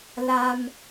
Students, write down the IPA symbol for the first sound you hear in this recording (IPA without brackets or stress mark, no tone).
l